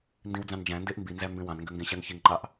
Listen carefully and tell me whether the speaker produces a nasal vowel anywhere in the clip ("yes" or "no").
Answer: yes